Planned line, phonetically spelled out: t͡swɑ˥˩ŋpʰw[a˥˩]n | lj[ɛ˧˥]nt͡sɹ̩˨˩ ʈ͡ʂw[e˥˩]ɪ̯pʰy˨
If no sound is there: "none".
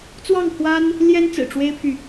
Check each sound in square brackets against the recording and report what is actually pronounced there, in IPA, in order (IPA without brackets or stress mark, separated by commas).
a˥, ɛ˥, e˥